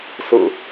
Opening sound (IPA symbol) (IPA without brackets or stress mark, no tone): s